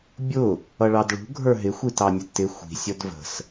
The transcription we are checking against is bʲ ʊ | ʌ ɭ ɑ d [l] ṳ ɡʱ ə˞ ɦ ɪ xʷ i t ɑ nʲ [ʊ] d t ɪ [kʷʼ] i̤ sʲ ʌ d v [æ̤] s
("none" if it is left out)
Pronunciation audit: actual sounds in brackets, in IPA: ɭ, ʊ, xʷ, ə̤

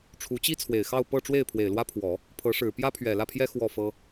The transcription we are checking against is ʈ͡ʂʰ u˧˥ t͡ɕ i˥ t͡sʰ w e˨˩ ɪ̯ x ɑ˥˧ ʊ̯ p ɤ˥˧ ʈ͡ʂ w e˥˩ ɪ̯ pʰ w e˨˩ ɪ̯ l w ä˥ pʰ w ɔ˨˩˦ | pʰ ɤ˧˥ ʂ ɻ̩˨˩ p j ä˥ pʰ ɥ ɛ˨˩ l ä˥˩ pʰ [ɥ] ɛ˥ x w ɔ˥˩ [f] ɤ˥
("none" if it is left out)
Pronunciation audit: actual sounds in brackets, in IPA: j, f

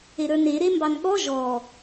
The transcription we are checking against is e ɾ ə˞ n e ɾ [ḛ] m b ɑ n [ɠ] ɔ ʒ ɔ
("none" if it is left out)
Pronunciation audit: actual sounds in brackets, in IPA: e, ɠ

